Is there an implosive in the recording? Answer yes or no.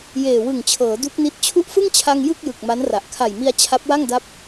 no